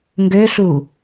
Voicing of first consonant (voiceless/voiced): voiced